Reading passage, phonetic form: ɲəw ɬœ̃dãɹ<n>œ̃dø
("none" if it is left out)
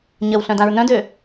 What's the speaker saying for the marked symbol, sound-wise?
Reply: n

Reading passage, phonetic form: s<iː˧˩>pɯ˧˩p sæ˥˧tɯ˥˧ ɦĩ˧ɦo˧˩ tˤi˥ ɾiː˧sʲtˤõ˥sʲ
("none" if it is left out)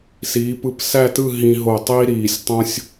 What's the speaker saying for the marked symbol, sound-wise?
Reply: iː˩˧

